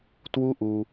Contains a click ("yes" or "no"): no